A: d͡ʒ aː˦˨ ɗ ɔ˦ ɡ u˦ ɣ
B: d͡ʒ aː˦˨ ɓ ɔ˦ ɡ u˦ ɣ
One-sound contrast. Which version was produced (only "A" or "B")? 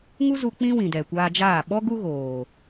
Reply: B